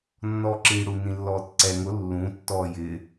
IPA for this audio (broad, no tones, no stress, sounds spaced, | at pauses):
nː ɔː ǁ iː ɽ u n ĩ lː ɔː t ǀ ɛ ŋ ʊ lː ũ tː ɔː j ɪː